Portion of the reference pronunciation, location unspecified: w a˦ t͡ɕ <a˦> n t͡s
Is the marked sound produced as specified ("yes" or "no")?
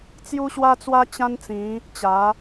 no